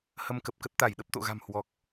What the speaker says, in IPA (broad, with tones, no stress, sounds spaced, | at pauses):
h ə˧ m k ə˨˩ p̚ k ə˦˥ t̚ t̪ a˧˩ j ɗ ə˦˥ p̚ t̪ o̰˧˨ ɣ a̤˨˩ m h w ɔ˨˩ k̚